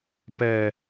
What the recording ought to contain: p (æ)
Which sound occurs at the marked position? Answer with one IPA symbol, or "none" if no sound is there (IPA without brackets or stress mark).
ɛ